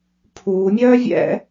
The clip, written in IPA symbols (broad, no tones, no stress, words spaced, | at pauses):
pʰuːmʲœː vʲɛ̰